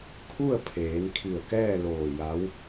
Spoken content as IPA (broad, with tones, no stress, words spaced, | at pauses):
kʰu˥˨ə̯pʰeː˩˧nkʰi˧˩ə̯ kɛː˥˨loː˧˩ ja˧˥w